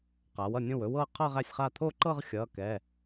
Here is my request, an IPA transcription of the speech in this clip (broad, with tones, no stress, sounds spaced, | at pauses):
q aː˩˥ w ʌ˥˩ nʲ õ˥˩ w ɵ˥˧ w ɤː˥˧ qʰ ʌː˥˧ ʁ æ˥˩ sʲ χ a˥˩ t̪ʰ o˥˧ ǃ ɤ˥˧ ʁ xʲ ʌː˩˧˩ k ɛ˩˧˩